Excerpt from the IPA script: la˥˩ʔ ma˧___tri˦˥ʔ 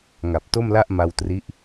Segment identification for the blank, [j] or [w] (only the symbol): w